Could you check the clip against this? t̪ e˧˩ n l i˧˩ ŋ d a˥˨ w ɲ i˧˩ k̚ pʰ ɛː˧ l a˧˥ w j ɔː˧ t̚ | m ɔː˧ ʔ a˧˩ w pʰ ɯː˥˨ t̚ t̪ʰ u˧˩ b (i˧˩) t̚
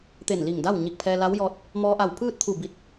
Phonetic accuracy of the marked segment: correct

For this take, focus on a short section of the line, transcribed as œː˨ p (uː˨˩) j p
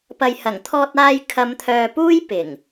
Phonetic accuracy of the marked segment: incorrect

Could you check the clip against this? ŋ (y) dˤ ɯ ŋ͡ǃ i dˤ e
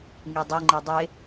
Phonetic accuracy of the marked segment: correct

